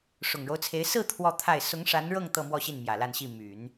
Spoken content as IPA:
ʂʊ˨˩ŋɻo˦ʊ̯t͡sʰe˧˥ɪ̯ sɹ̩˥˧ t̪ʰwɔ˥˧t̪ʰa˥˩ɪ̯ sʊ˧˥ŋʂa˧˥nɻɤ˥˧ŋ t̪ɤ˥˧mwɔ˥˧ɕi˥˩n mjä˨˩ la˥˧nɕi˥˩ my˨˩˦n

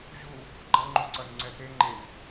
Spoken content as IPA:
ʑu | ɡ͡ǃʌŋ͡ǃu ǀʌnŋ͡ǀɛt̪e ŋ͡ǃen

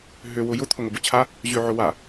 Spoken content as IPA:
ɦø wʊjʊ t̪ʰʊŋʊbʊt͡ɕʰa | ʑøʕʊwa

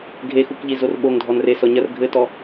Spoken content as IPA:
ɡʱexukʎi zorɓoŋ dʱɔnresɔ ɲɐr ɡʱɘtɔ

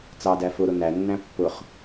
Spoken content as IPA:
t͡sɑdæ fʊɾʊ nænːæ̃ pːʊχ

